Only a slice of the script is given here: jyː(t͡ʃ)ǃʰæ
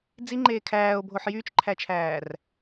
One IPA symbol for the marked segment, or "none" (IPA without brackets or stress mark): t͡ʃ